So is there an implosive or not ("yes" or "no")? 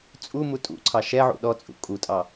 yes